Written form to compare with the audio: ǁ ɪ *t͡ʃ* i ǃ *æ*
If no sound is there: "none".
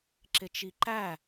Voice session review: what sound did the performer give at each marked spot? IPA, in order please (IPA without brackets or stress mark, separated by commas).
t͡ʃ, æ